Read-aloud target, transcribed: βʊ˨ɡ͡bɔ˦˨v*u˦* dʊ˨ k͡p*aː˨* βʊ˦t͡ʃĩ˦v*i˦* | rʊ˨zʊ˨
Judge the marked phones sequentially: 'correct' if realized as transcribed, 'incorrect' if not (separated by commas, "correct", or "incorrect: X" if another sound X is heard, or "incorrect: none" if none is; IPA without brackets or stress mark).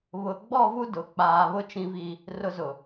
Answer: correct, correct, correct